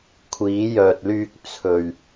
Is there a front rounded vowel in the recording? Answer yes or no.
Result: yes